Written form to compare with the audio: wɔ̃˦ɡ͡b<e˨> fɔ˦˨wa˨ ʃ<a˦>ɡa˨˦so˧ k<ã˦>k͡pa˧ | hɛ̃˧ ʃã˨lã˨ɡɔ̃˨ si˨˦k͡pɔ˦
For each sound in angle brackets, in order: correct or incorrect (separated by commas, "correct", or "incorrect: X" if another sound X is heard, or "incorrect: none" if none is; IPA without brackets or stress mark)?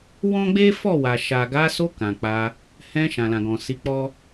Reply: incorrect: e˦, incorrect: a˨, incorrect: ã˨